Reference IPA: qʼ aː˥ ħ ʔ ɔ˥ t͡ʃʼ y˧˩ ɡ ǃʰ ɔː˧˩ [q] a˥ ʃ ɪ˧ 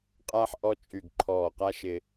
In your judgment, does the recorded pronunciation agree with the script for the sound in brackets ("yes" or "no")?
yes